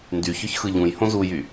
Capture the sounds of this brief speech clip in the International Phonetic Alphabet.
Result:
ndyçœç xɯʎũjhõ zujy

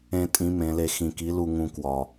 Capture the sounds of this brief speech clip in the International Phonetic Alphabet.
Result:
ẽ˧ tʼĩ˧˥mẽ˩˧le˧ xĩ˧ki˧˥ lu˧ŋũ˧ kwɒ˧

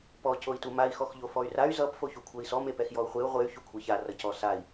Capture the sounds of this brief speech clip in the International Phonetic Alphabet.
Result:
pɔ coi̯tumai̯ xɔxʎofɔy̯ray̯ zʌp foçukʷʰɜi̯sɔ mepɛxjɔu̯χʷeu̯ ʁʷey̯ çukʷʰeça rʌcɔsai̯

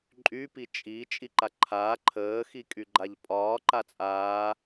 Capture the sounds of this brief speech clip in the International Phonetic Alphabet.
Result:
ǃʼy pit͡ʃʼi t͡ʃʼiǃaǃʰaː ǃʰəː xikʼyɡ͡ǃaʎpʼɒː ǃat͡sʼaː

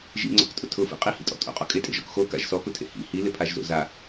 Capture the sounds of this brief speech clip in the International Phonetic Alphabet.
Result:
ʒḭŋ͡ǀɔ̰ktʼʊ tʰʊfḭ qʼihḭtʼɔ̰ tʼo̰qʼɔ̰ kʼetʼḛʒɔ̰k xoka̰ʒ sɔkʊtʰḛ hḭ hilɪpʰaʒzo̰ za

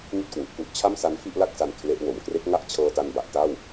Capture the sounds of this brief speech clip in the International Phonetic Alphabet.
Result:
ŋi˥˩t̚kwu˨˩ʔku˦˥ʔ t͡ɕʰa˥˩msa˦˥n fi˥˩ʔla˥˩k̚sa˧n kʰle˦˥ʔ wo˨˩mkre˦˥k̚ŋa˥˩ʔ t͡ɕʰɤː˧ta˧nba˨˩ʔ ta˥˩w

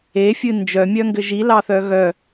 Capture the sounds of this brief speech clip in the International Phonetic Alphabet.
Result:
efʲɨ nd͡ʒœmʲœŋɡɘ ʒilɑθœ ɣœ

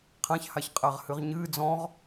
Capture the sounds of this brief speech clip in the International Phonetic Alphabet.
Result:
qʰãç haçqʼaʁhɨʁɲɨː d͡zɔ̃ʁ

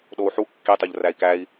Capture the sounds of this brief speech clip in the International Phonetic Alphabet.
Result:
ɗou̯ħu kːitˤoʎ ræi̯kæi̯

